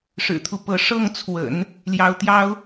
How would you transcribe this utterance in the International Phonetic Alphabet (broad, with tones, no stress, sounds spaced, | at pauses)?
ʂ ɻ̩˨˩ t̪ʰ u˦ p ɤ˧˥ ʂ ɤ˥˩ ŋ t͡sʰ w ə̰˨˩˦ n | l j ɑ˧˥ ʊ̯ t̪ j ɑ˥ ʊ̯